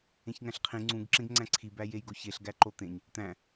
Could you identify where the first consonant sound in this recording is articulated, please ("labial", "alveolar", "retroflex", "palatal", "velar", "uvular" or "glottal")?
palatal